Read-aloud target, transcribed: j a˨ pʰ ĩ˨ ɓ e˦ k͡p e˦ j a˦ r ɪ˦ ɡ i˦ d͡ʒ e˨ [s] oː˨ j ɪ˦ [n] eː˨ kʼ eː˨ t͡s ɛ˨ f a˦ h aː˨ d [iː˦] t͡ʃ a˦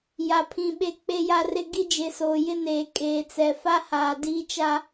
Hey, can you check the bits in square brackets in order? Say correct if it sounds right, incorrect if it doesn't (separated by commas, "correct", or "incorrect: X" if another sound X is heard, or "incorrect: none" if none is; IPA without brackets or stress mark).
correct, correct, correct